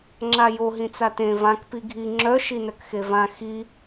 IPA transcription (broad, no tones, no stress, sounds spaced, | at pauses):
ŋ͡ǁ a j o ɦ ĩ t͡s a t ẽ v ã k p i ɡʱ i ŋ͡ǁ œ ʃ i n œ k x e v ã x i